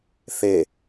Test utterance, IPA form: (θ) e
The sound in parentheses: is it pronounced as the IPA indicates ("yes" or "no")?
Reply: yes